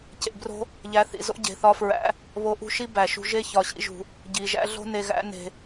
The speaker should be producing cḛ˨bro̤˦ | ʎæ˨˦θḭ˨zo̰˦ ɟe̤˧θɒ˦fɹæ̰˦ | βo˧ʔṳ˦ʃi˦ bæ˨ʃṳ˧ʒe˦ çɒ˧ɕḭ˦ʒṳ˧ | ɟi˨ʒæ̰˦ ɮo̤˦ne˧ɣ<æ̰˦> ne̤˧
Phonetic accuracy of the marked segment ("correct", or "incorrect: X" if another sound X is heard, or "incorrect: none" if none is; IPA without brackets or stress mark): correct